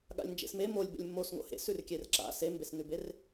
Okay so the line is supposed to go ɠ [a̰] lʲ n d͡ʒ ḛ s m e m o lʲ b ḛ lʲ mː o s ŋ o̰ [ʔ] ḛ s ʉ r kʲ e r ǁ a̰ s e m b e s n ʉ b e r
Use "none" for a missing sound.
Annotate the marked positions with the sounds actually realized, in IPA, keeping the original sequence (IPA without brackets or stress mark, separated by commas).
a̰, h